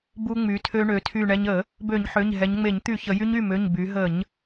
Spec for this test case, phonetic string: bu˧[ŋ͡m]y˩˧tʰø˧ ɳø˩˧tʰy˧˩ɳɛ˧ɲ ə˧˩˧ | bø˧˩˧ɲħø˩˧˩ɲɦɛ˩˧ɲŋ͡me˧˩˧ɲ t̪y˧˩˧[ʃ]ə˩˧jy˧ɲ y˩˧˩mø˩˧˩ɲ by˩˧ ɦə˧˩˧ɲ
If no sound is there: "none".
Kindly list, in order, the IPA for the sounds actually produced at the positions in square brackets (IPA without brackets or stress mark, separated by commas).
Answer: ŋ͡m, ç